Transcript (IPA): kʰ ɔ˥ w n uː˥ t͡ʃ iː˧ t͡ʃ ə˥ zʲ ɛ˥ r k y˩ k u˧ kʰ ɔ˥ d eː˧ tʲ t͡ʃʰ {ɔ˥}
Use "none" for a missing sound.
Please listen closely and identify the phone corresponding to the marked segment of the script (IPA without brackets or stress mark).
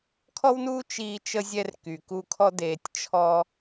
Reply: ɔ˥